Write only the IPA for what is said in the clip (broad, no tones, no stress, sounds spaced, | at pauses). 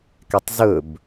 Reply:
k ɛ tˤ z ɵ b